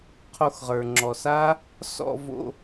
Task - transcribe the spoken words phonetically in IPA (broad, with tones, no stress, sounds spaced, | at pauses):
qʰ o˧ x ʁ ə˞˩ ŋ͡ǁ ɔ˩ s a˦˥ | s ɔ̰˥˧ v o̰˧